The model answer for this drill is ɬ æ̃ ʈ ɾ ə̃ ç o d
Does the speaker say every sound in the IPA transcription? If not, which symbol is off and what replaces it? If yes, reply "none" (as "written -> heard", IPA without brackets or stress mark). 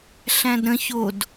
ʈ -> d